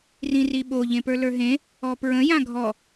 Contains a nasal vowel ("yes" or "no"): yes